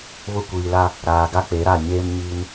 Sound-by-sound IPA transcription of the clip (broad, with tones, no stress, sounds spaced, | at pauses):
β ʊ˦˨ kʷ iː˨ l a˦ | ɾ aː˨ ɡ a˦ k͡p e˨˦ ɾ a˦˨ ɲ eː˦ m ɲ iː˦ n